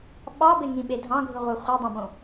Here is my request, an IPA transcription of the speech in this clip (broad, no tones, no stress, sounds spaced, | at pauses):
ɓ ɑ b e ŋ ĩ ɓ e dʱ ɑ̃ ɡʱ ɯ ʁʷ ɯ χʷ e dˤ õ b õ